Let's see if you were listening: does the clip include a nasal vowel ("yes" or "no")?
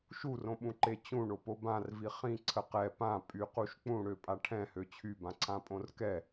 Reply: yes